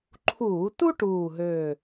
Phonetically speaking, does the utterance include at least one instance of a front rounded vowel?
yes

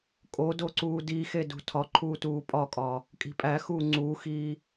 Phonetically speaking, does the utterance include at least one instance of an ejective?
yes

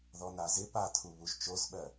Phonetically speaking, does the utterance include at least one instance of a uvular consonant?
no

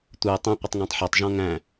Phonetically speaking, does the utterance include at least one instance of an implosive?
no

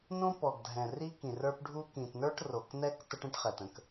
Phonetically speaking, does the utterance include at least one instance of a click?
no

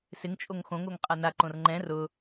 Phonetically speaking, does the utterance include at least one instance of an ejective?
yes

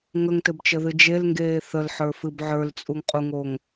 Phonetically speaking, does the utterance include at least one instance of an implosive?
no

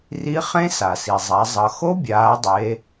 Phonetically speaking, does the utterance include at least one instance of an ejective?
no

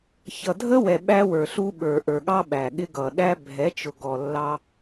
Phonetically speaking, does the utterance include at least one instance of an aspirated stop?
no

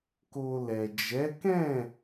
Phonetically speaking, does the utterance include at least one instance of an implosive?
no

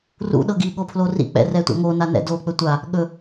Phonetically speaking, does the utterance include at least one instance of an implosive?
yes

